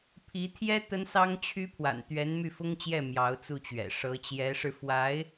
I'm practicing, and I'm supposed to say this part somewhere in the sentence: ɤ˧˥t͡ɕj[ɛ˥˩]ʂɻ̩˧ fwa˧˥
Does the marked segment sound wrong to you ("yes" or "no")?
yes